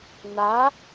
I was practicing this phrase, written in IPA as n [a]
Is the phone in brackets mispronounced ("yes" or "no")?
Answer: no